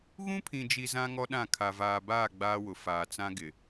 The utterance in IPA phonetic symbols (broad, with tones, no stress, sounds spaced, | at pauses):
ɣ ũ˦ pʰ ĩ˨ d͡ʒ i˨ z ã˦ ŋ ɔ˦ ɗ ã˦˨ kʰ a˨ v aː˨ b aː˦˨ ɡ͡b aː˦ w ʊ˨ f aː˨ t͡s ã˦ ɡ ɪ˨